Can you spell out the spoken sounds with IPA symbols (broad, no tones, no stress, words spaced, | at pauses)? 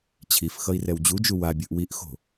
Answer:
t͡ɕʰif xʌi̯rɛwd͡ʑud͡ʒu wabʲɯʔ wiʔxo̤